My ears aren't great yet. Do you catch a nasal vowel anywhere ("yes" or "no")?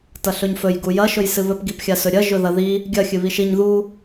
no